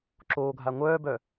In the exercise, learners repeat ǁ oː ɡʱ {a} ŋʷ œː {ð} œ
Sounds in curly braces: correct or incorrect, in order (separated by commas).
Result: correct, incorrect